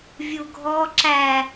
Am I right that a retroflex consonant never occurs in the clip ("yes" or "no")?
yes